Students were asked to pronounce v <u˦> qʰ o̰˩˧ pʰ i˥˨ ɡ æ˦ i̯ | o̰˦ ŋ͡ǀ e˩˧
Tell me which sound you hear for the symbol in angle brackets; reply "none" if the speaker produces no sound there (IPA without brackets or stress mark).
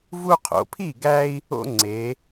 u˦